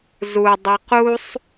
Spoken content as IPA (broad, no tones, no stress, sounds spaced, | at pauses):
z u dˤ i q u sˤ